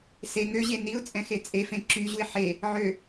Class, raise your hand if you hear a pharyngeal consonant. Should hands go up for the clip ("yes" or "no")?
yes